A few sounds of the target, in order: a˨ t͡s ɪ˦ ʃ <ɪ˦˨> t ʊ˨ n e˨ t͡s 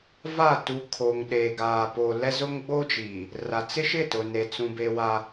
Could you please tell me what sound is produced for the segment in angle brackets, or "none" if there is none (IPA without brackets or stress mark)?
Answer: ɪ˦˨